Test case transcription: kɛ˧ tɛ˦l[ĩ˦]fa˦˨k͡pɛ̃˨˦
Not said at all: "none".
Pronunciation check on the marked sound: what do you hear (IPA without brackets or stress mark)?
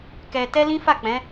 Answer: ĩ˦